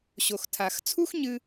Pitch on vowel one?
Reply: low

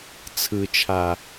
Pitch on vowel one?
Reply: low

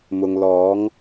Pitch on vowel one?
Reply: low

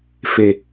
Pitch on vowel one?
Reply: low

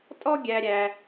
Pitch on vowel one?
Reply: high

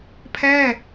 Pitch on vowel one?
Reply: falling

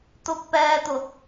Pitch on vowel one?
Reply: high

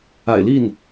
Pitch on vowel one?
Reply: low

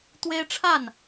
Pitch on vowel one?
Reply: high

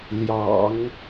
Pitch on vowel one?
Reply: low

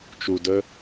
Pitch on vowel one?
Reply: low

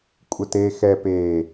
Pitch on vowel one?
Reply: low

